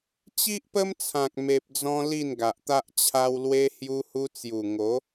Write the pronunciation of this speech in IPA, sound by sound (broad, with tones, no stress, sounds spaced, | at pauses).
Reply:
t͡ɕ i˦ ʔ p ə˦ m t͡sʰ ã˨ k̚ m e˨ p̚ d͡z ɔ̃˧ l i˥˧ n ɡ a˨ ʔ t̪ a˦ ʔ t͡ɕʰ a˧ w l w e˧ h j u˧ h u˧ t͡s j u˨˩ ŋ o˨˦